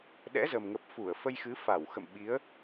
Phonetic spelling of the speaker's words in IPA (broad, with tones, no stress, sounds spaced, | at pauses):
ɗ ɛ̰˧˥ z ə˨˩ m ŋ ə˨˩ p̚ f u˧˩ ə̯ f ə˧ j x ɨ˨˦ f a˧˩ w x ə̰˧˨ m ɓ i˨˦ ə̯